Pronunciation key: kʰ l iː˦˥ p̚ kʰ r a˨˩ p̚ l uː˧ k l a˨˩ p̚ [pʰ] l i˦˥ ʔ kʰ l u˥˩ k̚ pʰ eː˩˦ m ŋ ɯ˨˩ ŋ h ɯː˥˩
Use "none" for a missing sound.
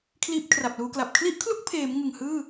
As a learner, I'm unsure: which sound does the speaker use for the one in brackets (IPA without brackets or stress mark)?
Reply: kʰ